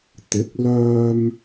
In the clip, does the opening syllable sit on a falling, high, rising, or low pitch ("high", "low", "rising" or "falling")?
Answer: rising